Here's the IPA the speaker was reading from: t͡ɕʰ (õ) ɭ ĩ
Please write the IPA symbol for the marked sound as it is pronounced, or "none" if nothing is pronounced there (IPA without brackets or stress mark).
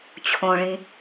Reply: õ